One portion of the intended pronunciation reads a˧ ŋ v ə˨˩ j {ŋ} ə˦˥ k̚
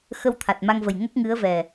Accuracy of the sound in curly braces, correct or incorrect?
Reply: correct